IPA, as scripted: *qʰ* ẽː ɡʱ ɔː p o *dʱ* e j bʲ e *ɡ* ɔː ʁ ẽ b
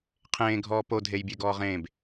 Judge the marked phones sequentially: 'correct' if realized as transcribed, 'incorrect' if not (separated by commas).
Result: correct, correct, correct